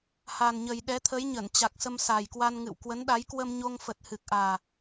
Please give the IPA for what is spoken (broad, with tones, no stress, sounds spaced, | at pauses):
h a˨˩ n ɲ ə˨˩ j ɗ ɛ˨˦ t̪ʰ ə˨˦ j ɲ ə˧˩ n t͡ɕ a˨˩ k̚ s ə˧ m s a˨˩ j k w a˧ n ŋ ɨ̰˧˨ w k w ə˨˦ n ɗ a˨˦ j k w ə˧ m ɲ o˧ ŋ f ə˨˩ t̚ h ɨ˨˩ k̚ ʔ aː˨˩